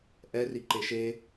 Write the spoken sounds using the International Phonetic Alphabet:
ʔɛ riǃeʃe

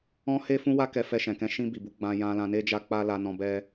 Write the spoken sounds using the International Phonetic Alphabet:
ɔ̃˦he˦ fũ˧wa˧ kɛ˧fɛ˧ʃɛ̃˨kɛ̃˧ ʃĩ˧bi˨bu˨˦ ɡ͡bã˧ jã˦ lã˧ne˦d͡ʒa˦ k͡pa˦la˧nɔ̃˧ bɛ˦

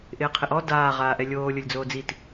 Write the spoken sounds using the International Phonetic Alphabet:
ʔɪːqʰɪʔɔ daː ʁaːʔɛlʲoː lʲolʲd͡zoːd͡zit

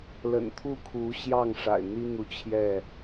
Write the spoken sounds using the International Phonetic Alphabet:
lə̰˨˩nt̪ʰu˥˨kʰu˨˦ɕjɑ˥˨ŋ ʂa̰˨˩ɪ̯n̪i˦n̪u˨t͡ɕʰjɛ˥˨

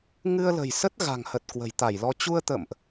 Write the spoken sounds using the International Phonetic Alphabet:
ŋɨ˧ə̯lə̤˨˩jsə˦˥t̚ ɣa̤˨˩ŋhə˨˩t̚ kwə̤˨˩jt̪a˧˩jlɔ˧ t͡ɕu˧ə̯t̪ə̰ː˧˨mʔ

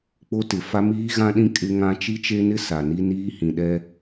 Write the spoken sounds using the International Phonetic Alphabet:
k͡po˦tɪ˨ fa˦miː˦ɣã˦ɗĩ˦ kʼɪ˦ ŋã˦ t͡ʃi˦t͡ʃe˦nɪ˦ sa˨ni˦niː˦ hĩ˨ɗɛ˦

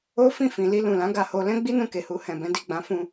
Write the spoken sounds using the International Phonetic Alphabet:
o˦ fĩ˦˨fĩ˨li˧ lũ˨lã˨˦ɡa˧ho˧ lɛ̃˦ɡ͡bi˦nũ˧ ke˨hu˧hɛ̃˨bɛ̃˨˦ di˦˨ɡ͡bã˨˦fũ˧

